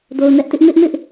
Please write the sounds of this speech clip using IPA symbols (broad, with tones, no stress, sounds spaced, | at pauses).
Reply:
d o˨ ʊ̯ n ɛ˦ ʔ t ɪ˦ ʔ m ɪ˦ ʔ m ɪ˦ ʔ